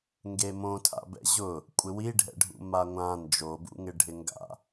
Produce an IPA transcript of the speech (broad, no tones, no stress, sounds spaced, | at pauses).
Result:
ŋ ɡ e m õ tʰ a̰ b ɛ̰ ʑ ʊ | kʷʼ ɪ w i ɖʱ ɛ̰ ɖʱ ṵ m a ŋʷ ã n d͡ʒ o b ṵ ŋ ɪ ɖʱ ɪ ŋ ɡ a̰